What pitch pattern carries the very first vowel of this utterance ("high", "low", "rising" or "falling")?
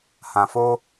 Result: low